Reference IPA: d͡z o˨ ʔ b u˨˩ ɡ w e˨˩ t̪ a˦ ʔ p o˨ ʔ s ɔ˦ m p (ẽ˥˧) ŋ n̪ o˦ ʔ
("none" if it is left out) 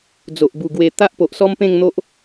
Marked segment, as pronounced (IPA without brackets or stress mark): ẽ˥˧